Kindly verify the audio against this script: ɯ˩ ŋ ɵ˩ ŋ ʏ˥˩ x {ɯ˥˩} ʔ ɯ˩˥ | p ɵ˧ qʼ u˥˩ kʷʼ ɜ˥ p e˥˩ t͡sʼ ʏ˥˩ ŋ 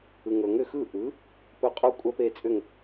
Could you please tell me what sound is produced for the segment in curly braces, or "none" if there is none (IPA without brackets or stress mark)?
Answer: ɯ˥˩